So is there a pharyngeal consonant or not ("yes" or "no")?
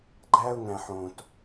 yes